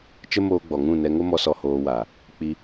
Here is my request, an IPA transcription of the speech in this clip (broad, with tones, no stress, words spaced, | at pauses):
t͡ʃə˦moː˧ɡ͡bɔ˨ŋũ˦˨ nɛ˧ŋo˦mɔ˧sɔ˧ hoː˧wa˨ | k͡pi˧